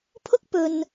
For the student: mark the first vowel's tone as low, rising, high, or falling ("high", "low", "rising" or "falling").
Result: high